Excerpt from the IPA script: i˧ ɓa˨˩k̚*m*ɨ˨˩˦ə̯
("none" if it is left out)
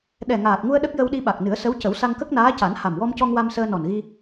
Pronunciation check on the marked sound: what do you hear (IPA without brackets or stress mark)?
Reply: n